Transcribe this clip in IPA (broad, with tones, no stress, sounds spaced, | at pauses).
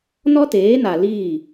n ɔ˦ t eː˨˦ n a˨ l iː˦˨